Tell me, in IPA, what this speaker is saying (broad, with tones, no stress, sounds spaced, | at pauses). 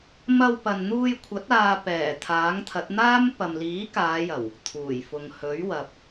m ɐ˧ w p ɐ˨ n n̪ uː˧ j kʷʰ ɐ˨˥ t̚ aː˧ p ɛː˨˩ t̪ʰ aː˨˥ ŋ t̪ʰ ɐ˨˥ t̚ n̪ aː˥ m p ɐ˨ m l iː˨˥ k aː˨˧ j ɐ˨˩ w | t̪ʰ uː˨˩ j f ʊ˨ ŋ h ɵ˨˥ ɥ w ɐ˨ p̚